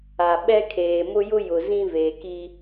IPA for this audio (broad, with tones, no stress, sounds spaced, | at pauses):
a˨ ɓ ɛ˦ kʰ eː˨ m ʊ˦ j ʊ˦ j ʊ˨ z ĩ˦ v eː˨ k i˦